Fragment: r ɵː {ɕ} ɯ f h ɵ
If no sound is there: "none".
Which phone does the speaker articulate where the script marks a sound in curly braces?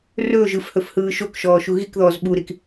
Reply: ʒ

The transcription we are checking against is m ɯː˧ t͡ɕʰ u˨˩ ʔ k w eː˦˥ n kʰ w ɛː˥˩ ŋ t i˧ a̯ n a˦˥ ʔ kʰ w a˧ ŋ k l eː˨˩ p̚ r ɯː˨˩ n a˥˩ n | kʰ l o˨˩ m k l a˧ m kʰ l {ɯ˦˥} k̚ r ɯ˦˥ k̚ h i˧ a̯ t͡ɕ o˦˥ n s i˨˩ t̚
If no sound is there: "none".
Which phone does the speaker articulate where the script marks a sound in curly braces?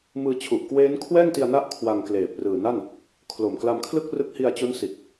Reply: ɯ˥˩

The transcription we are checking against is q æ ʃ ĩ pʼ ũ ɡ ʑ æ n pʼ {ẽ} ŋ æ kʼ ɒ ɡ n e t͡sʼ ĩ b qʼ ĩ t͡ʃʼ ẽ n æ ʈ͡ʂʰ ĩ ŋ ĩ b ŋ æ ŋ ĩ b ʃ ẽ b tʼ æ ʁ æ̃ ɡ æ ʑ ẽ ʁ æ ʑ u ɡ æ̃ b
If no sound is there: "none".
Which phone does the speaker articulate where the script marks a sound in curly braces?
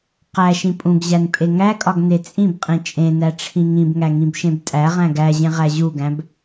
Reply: e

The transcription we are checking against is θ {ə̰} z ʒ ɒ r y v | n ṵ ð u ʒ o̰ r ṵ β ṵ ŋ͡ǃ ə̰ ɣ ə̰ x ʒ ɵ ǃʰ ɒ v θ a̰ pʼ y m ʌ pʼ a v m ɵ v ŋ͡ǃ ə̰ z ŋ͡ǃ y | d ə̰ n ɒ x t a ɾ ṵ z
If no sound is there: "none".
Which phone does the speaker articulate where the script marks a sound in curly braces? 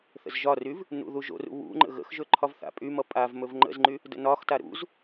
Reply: ə̰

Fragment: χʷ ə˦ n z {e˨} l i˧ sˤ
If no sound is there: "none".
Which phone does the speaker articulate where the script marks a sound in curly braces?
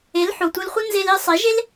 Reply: e˧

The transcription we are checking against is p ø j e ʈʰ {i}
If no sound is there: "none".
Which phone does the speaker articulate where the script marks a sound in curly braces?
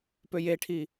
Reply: i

